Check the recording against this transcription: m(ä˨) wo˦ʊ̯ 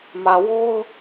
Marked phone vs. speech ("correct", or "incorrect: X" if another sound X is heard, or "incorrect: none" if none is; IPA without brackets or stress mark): correct